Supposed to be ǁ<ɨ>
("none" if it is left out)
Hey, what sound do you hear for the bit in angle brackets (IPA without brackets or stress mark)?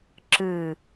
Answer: ɨ